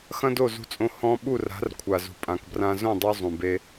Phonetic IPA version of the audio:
xɐ̃˦do˦˨zṳ˧t͡sʼõ˧ hɔ̃˧ ɓu˦˨ra̤˨˦r kʷʰa˨zṳ˨pʼã˨kbrã˧ zõ˦˨dˤo˧ zˤũ˨be˦

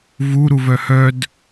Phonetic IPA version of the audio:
vuɾuvœ hœd

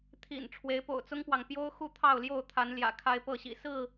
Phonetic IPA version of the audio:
t̪ʰḭ˨˩n ʈ͡ʂʰwe˨˦ɪ̯po̰˨˩ʊ̯t͡sʊ˦ŋpwɑ˨ŋ pjo˦ʊ̯ xu˥˨t̪ʰɑ˥˨ʊ̯ljo˥˨ʊ̯ t̪ʰa˨˦nljä̰˨˩ kʰa˦ɪ̯pɤ˥˨ɕḭ˨˩ sɹ̩˥˨

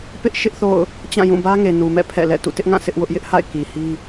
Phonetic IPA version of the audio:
pɪ˦ʔ ʃɪ˦ʔθo̰˦˨ʊ̯ | t͡ɕã˦˨jũ˦˨bä˦ŋe˨ nu˨mɛ̰˦˨ pʰɛ̰˦˨lɛ̰˦˨ tṵ˦˨tɪ˦ʔŋã˦˨ sɪ˦ʔwʊ˦ʔ jɪ˦ʔha̰˦˨ɪ̯ ki˨hi˦

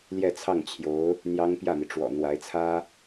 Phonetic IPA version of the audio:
ljɛ˥˧t͡sʰɑ˥˩ŋt͡ɕʰjo˧˥ʊ̯ | n̪jɑ˥ŋpjä˥˩mi˩ ʈ͡ʂwɔ̰˨˩n̪wa˧˥ɪ̯t͡sʰä˥

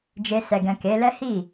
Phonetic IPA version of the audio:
d͡ʒe˧ sɛ˨ɡɛ̃˨ ke˨˦lɛ˦ hi˦˨

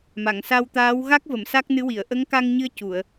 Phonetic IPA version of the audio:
ma˨˩˨ŋsa˧wt̪aː˧˥w ɣa˦˥k̚və˨˩˨m sa˦˥k̚nɨ˧˥wi˨˩˨ə̯ ʔə˧˥ŋka˧ŋɲɨ˧ə̯ cu˨˩˨ə̯

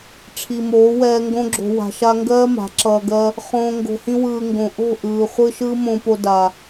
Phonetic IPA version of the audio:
ʈ͡ʂʰi˨moː˨˦wɛː˧ ŋɡõ˧ɡ͡ǁo̤˨ wa̤˨ʃa˧ ŋɡɜː˦ma̤˨˦ ǁʌː˨ɡɜ˧ | χõː˨ ŋɡo̤˨hĩ˧wɯː˨ ŋɡõ˨ʔo̤˦˨ ʔɯː˨χʷɯ˧ ʃɯː˦mõː˧po˧ da˨

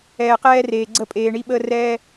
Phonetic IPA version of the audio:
ɛː˨qɛː˦reː˨ ɡ͡ǀə˦˨pʼeː˨ɳi˦ɓəː˦ rɛː˦

